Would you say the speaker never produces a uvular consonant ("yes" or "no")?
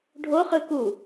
no